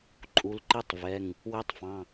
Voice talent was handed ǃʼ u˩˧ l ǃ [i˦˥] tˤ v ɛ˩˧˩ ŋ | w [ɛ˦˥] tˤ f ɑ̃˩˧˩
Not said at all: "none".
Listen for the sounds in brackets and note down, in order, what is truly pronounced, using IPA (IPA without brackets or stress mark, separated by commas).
i˦˥, ɛ˦˥